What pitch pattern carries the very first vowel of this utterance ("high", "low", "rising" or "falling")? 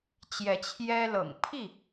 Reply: rising